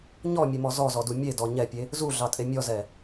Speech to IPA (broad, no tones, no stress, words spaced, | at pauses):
ɲɔmʲemɔ zɔzɔdu mʲedɔ ɲɛpʲe | zuɮɑtʼe mʲɔzɛ